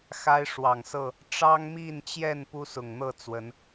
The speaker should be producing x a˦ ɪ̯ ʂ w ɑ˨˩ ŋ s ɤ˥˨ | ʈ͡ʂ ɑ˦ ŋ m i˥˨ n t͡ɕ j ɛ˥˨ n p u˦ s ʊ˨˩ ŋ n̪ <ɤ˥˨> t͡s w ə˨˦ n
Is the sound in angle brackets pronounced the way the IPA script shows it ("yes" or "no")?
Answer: yes